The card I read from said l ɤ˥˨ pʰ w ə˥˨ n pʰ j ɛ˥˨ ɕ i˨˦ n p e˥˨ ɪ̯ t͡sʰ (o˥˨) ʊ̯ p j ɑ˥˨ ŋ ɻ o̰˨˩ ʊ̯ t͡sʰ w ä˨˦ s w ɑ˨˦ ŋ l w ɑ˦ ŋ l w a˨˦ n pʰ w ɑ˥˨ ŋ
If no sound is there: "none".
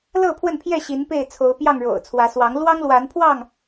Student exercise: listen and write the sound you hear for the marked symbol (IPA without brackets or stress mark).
o˨˦